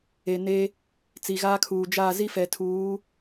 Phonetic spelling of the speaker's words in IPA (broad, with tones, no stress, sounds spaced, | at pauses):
e˨ n e˦ | t͡s i˨ ɣ aː˦ kʰ uː˨ d͡ʒ aː˦˨ z i˦ f ɛ˨ tʰ uː˨˦